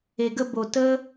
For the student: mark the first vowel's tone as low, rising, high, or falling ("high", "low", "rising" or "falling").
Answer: low